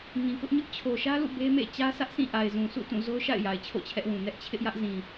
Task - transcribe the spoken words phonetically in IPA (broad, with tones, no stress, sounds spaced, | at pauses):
ŋ ĩ˨ k ʊ˦ ʔ ɲ ʊ˦ ʔ t͡ɕʰ o˨ ʃ ä˦ l ṵ˦˨ b e˦ m ḛ˦˨ t͡ɕ ä˦ sʰ ä˦ ʔ sʰ ĩ˦˨ ʔ a˨ ɪ̯ z ũ˨ sʰ ṵ˦˨ t ũ˦˨ z o˦ ʊ̯ ʃ a̰˦˨ ɪ̯ j a˨ ɪ̯ t͡ɕʰ o̰˦˨ t͡ɕʰ ɛ˦ ʔ w ũ˨ n ɛ˦ ʔ t͡ɕʰ ɪ˦ ʔ j ä˦ ʔ z ĩ˨